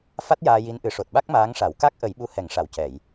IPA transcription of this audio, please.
f a˦˥ t̚ j aː˧ j i˧˥ n ʔ ɨ˨˩˦ ʂ o˨˩ t̚ ɓ a˦˥ k̚ m aː˧˥ ŋ ʂ a˨˩˦ w k a˦˥ k̚ ʔ ə˨˩˦ j ɓ u˧ h ɛ˨˩˦ ŋ ʂ a˨˩˨ w c ɛ˨˩˨ j

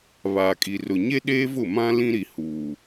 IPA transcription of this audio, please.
β aː˨ kʼ i˨ r ʊ˨ ɲ e˦ ɗ eː˦ v ʊ˦˨ m ã˦ l ĩ˦ ɾ i˨ h uː˨

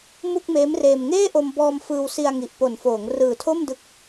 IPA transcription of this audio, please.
m u˥˩ k̚ m eː˦˥ m r eː˧ m ŋ eː˥˩ ʔ o˧ m b ɔː˧ m f ɯː˧ w s i˧ a̯ ŋ i˨˩ ʔ p o˨˩ n f oː˩˦ ŋ r ɯː˨˩ tʰ o˥˩ m d ɯ˦˥ k̚

